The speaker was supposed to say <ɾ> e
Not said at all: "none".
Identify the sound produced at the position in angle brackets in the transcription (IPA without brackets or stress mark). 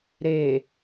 ɾ